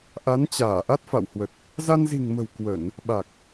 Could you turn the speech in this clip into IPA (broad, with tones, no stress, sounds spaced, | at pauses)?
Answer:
ʔ a˨˦ n t͡ɕ aː˧˩ ʔ a˦˥ t̚ f a̰˧˨ w h w ə˨˩ t̚ | z a˧ n z i̤˨˩ ŋ m ə̤˨˩ w k w ə˧˩˨ n | ɓ a˨˩ k̚